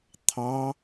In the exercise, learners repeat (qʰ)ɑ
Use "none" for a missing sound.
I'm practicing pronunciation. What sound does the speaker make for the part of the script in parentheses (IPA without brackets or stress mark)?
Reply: t̪ʰ